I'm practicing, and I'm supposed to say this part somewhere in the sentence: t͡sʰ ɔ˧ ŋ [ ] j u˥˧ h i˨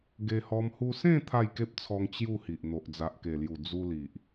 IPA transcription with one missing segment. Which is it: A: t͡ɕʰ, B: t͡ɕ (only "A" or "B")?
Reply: B